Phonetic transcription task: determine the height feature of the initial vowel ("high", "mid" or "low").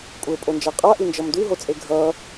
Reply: mid